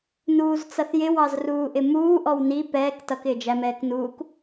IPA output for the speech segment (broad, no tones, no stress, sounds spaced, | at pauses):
n uː z t͡s ʌ θ j ɪ w ɑ z r uː ʔ ɪ m uː ʔ ɔ w n i p ɛː k t ʌ k ɪː d͡ʒ æ m ɛː k n uː k